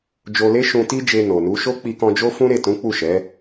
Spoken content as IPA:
d͡ʒo˧le˦ ʃũ˧ti˦d͡ʒe˧ no˨nu˨˦ ʃo˦ k͡pi˧kɔ̃˧d͡ʒo˦fũ˦ ɾe˦˨tũ˨˦k͡pu˦˨ʃɛ˨˦

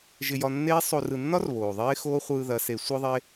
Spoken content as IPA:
ʒɪ˧ jɒ˧nːeː˦ sˤo˧r ɯ˨nːɒ˦r βoː˨ðˤeː˦ xoː˦χʷɯː˧ ðɐ˨˦se˨˦ sʷɯ˦ðˤe˦

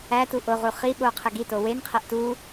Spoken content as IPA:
ætu ʔoʁu χiɓo qʰeɡito wenqʰeʔ tu

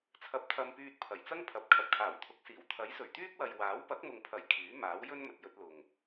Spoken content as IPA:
t͡sʰɐ˧p̚t̪ʰɐ˧mpyː˧t̚ pʰɐ˨˩jt͡sɐ˥ŋpʰɐ˨˥p̚ kʰɐ˨p̚kʰaː˨˩wt̪ʰʊ˨˥k̚siː˨˩w t̪ʰɐ˨˥jsɵ˨˩ɥt̪yː˥k̚wɐ˨j waː˨˥wpɐ˨˥k̚mʊ˨ŋpʰɐ˨˩j kʰyː˨˥maː˨˥wjɵ˥n mɵ˨t̚jɵ˧t̚lʊ˨ŋ

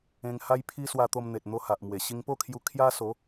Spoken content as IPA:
ẽ˧ŋha˦jpʰi˦ swa˧t̪o˧mn̪e˨t̚n̪o˧ ha˨ʔmwe˨˩ ɕi˧ŋpo˥˧kʰju˧ kʰja˦ so˨˦

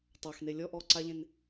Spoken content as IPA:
tˤɑxne lʲɔʔɔː ǀaʎẽn

